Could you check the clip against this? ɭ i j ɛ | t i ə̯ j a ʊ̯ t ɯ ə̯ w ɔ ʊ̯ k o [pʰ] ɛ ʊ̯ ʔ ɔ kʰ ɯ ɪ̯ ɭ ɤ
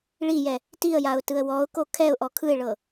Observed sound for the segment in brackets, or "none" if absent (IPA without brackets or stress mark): kʰ